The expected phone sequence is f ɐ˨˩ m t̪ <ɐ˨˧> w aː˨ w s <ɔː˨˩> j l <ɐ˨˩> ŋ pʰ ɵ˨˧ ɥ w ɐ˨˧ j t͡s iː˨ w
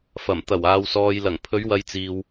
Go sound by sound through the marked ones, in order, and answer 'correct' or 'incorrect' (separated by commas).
incorrect, incorrect, correct